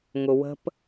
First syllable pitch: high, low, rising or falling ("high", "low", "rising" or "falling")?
low